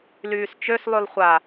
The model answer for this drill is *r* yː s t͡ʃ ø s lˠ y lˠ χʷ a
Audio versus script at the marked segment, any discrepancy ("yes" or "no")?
yes